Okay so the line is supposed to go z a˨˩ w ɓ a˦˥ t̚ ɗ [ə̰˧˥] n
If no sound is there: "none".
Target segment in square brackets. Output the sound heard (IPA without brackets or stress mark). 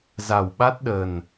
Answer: ə˨˩